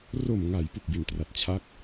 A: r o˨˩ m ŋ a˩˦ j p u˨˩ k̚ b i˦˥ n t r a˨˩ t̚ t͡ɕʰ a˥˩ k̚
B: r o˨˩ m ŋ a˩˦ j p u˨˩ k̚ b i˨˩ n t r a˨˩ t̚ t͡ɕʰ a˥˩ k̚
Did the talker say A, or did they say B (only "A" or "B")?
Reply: B